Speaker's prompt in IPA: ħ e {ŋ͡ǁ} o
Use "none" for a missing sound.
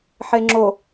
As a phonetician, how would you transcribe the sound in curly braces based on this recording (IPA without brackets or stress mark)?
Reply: ŋ͡ǁ